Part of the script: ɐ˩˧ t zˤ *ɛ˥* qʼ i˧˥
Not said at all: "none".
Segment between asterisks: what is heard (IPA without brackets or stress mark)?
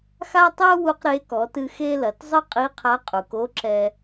ɨ˥